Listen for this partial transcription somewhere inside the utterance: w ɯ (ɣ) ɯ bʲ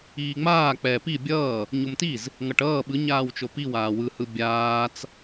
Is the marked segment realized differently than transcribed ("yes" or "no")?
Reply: yes